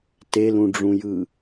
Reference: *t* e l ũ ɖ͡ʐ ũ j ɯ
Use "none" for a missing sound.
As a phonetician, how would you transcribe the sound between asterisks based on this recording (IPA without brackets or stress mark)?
t